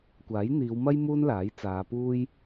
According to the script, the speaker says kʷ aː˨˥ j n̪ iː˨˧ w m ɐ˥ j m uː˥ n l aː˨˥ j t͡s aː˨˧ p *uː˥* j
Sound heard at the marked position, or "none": uː˥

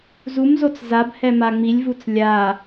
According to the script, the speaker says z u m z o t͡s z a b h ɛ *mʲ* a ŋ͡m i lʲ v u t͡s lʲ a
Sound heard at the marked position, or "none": m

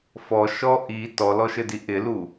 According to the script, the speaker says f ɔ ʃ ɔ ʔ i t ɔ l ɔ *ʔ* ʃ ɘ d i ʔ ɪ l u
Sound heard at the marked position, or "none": none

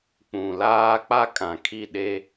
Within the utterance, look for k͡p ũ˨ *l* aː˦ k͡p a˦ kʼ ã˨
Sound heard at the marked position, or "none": l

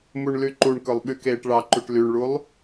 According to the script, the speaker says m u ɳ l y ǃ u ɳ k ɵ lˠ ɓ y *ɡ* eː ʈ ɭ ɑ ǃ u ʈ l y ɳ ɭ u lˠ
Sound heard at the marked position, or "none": k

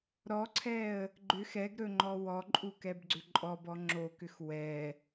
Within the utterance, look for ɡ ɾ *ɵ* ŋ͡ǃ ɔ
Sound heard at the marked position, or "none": ɵ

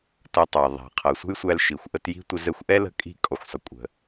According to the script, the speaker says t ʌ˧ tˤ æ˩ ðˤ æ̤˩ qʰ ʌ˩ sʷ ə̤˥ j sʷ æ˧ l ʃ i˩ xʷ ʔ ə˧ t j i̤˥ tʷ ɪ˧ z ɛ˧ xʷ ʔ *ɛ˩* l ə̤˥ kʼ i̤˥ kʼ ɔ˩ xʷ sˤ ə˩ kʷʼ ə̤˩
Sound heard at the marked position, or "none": ɛ˥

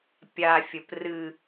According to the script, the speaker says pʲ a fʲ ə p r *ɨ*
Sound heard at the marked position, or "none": ɨ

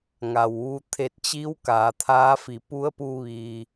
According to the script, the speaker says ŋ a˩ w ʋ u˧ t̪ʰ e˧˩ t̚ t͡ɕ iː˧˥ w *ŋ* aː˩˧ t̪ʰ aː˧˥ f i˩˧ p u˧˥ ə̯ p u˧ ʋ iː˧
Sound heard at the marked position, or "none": k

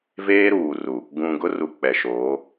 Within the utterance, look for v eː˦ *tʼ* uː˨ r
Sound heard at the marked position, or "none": ɾ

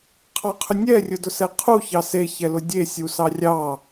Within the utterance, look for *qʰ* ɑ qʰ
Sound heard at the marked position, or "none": qʰ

